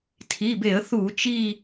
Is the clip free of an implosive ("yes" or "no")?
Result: yes